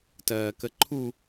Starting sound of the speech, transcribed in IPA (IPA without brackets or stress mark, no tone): t